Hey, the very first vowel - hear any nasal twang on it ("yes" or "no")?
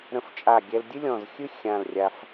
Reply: yes